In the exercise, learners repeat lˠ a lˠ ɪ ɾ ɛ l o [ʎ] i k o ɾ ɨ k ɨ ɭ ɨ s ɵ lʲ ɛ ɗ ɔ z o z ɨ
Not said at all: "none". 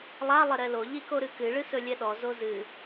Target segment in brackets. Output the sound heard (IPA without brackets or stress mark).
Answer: ʎ